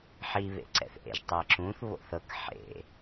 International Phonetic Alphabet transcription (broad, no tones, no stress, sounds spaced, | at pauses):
ħ i β ḛ ǀ ɛ̰ θ ʔ ḛ ʒ tˤ ɛ ǁ ũ θ β o̰ θ ɤ k ħ ḛ